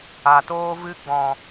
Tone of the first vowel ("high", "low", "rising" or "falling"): low